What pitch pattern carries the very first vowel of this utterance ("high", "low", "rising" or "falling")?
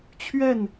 falling